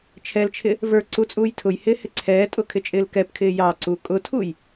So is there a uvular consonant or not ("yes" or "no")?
no